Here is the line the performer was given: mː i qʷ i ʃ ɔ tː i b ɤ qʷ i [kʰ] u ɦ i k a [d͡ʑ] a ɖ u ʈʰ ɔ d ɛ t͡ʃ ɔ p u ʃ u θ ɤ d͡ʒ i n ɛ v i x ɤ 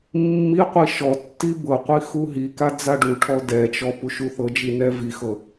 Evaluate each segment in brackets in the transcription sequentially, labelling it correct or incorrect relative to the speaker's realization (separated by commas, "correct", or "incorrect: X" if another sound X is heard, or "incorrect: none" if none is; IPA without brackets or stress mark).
incorrect: x, incorrect: d͡z